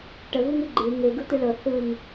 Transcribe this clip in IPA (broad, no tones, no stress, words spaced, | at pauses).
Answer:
ʈəɣuŋɨ ɡ͡ǃɨ ŋeɡɯ t̪ɨɭɤ θɯŋ